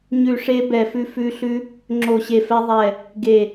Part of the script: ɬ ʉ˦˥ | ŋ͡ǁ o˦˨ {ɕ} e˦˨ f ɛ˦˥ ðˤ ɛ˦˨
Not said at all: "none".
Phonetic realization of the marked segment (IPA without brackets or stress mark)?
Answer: ɕ